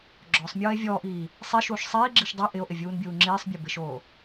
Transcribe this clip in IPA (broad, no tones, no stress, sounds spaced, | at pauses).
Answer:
ɡ͡ǁ ɔ sˤ mʲ ɔː e̯ vʲ ɔː ʔ iː | sˤ i ʃ uː ʃ sˤ iː ɡ͡ǁ i ʃ dˤ ɛ ʔ ɪ o̯ ʔ ɪ vʲ uː n bʲ uː ŋ͡ǁ iː sˤ bʲ o b ɪ ʃ oː